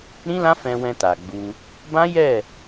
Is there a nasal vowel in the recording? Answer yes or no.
yes